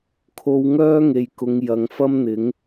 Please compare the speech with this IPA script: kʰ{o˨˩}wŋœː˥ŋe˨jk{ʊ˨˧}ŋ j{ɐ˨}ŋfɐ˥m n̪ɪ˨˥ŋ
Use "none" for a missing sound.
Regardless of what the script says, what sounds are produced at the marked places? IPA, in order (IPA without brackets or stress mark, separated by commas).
o˧, ʊ˨˧, ɐ˨